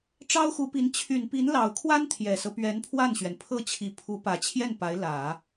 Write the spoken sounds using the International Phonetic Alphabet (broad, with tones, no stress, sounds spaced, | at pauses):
ʈ͡ʂ ɑ˥ ʊ̯ x u˧˥ p i˧˥ n t͡ɕʰ y˨˩ n p i˧˥ n l ɑ˨˩ ʊ̯ kʰ w a˥ n t̪ʰ j ɛ˨˩ s ɤ˦ p ɥ ɛ˧˥ n pʰ w a˥˩ n ɕ ɥ ɛ˩ n pʰ ɤ˥˩ t͡ɕʰ i˧˥ pʰ u˧˥ p ä˨˩ t͡ɕʰ j ɛ˥˩ n p a˧˥ ɪ̯ l ä˨˩˦